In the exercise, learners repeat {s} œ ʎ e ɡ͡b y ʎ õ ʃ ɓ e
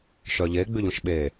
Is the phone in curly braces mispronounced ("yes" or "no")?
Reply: yes